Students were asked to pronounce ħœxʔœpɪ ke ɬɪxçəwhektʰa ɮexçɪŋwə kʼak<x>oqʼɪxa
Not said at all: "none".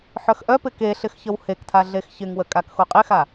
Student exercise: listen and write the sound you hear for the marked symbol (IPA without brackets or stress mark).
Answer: x